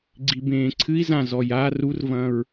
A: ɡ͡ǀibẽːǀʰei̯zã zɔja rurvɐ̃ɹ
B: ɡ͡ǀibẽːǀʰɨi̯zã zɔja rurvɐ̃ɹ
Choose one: B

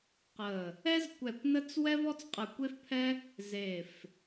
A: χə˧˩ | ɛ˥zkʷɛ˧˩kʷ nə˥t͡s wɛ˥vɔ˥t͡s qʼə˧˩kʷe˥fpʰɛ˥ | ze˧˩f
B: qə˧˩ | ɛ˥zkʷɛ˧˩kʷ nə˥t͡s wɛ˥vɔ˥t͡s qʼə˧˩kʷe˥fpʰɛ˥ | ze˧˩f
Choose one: B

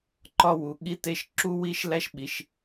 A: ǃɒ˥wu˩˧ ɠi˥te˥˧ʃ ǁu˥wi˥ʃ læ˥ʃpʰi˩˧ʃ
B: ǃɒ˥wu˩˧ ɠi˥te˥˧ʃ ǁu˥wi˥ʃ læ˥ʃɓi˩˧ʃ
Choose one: B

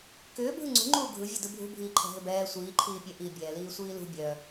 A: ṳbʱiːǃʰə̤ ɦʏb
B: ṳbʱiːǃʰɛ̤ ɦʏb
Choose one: B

